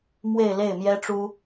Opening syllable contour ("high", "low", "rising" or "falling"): falling